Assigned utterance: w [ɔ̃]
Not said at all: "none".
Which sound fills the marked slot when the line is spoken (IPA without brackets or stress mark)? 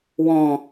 ɔ̃